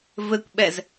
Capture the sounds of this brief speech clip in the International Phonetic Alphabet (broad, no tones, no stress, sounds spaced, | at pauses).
v ɘ kʷ ɓ ɛ z